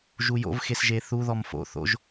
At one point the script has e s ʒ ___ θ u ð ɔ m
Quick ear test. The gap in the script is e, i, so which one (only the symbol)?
e